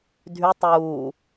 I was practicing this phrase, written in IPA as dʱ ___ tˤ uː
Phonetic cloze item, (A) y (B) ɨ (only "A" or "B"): A